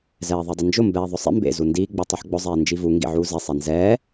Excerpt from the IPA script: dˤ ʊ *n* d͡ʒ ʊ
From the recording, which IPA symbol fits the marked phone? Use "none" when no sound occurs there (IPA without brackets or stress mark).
n